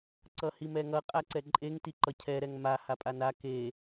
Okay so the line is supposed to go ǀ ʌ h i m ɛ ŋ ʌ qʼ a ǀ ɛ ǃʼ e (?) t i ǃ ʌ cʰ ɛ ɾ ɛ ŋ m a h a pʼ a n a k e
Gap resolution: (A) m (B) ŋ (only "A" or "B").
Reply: B